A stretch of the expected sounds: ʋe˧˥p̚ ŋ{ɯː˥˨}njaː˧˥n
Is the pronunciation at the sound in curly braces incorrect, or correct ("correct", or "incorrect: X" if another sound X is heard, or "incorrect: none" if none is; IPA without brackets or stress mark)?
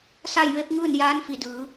correct